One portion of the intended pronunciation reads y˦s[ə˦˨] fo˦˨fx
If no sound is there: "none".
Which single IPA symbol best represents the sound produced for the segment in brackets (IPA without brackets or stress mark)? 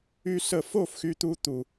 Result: ə˦˨